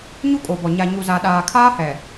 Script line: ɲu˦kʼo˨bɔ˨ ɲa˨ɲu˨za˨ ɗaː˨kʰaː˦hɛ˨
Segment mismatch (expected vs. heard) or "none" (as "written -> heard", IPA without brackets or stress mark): none